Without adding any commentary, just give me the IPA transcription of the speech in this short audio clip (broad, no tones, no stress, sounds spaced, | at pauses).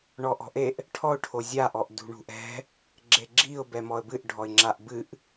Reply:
ɳ ɔ ʔ ɔ̤ ʔ e ʔ | ʈʰ ɔ ʊ̯ ʈʰ o zʲ a ʔ ɔ ʔ d ṳ ɳ ṳ ʔ ɛ̤ | ɡ͡ǁ e ɡ͡ǁ i ʊ̯ b ɛ m ɔ ə̯ b ɨ ʔ ɖʱ ɔ ɪ̯ ŋ͡ǁ a ʔ b ɨ ʔ